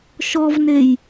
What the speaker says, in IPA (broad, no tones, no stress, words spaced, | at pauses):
ʃɔvnej